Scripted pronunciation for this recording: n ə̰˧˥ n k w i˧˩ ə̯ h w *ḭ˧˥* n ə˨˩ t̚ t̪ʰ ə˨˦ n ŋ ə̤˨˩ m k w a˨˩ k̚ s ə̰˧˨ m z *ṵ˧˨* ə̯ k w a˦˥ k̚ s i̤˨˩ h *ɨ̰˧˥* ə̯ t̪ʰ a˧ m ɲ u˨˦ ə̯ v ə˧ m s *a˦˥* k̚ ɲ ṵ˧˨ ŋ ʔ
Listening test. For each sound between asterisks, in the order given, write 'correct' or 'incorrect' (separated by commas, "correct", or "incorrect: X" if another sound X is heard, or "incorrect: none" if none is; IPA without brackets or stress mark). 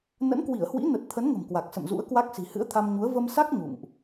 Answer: correct, incorrect: ṵ˧˥, correct, correct